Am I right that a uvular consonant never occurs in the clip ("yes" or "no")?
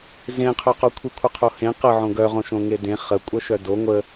no